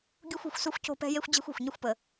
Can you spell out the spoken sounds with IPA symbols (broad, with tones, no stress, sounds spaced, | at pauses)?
ɡʲ u˧ xʷ o̤˩ xʷ s u˧ xʷ c o̤˧ p ɛ̤˧ j e˧ xʷ d͡ʑ ɛ̤˧ xʷ ɛ̤˩ xʷ ɲ ə˧ xʷ p ə˩